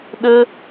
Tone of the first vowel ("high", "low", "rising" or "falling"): high